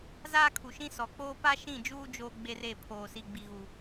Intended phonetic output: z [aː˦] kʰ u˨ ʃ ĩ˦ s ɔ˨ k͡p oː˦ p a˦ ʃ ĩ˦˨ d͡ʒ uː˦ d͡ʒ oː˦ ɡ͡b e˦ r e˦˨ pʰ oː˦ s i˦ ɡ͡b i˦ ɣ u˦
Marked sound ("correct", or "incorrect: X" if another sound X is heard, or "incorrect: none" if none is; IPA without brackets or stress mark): correct